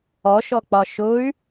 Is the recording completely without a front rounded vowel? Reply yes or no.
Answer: no